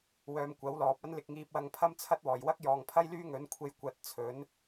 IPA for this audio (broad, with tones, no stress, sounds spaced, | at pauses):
w œː˧ m kʷ ɐ˨˥ w l ɔː˨ p̚ ɐ˥ n l ɪ˧ k̚ ŋ iː˧ p̚ w ɐ˧ ŋ pʰ ɐ˥ m t͡sʰ ɐ˥ t̚ w ɔː˨˩ j w ɐ˥ k̚ j ɔː˨ ŋ pʰ ɐ˥ j l yː˥ ŋ ɵ˨˥ n kʷʰ e˧ j kʷ ɐ˨˥ t̚ t͡sʰ ɵ˨˥ n